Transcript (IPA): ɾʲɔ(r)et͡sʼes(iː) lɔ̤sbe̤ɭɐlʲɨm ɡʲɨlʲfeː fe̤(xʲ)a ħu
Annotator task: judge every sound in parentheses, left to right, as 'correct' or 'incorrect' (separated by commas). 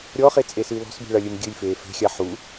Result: incorrect, incorrect, correct